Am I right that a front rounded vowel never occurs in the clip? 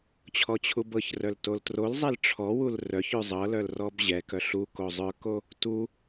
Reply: no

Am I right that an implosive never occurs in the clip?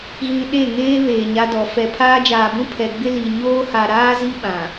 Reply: no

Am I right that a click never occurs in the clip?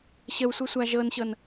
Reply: yes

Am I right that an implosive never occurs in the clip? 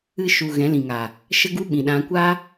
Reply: no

